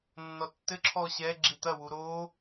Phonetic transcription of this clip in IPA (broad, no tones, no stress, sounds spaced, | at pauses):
nː ɔ tː ɘ ǁʰ ɔ ɕ ɛ ɡ͡ǁ i t̪ ɐ w u ɾ o